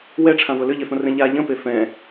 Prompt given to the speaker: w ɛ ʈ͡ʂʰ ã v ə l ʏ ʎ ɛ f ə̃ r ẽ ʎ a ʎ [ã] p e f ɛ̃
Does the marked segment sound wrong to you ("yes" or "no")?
yes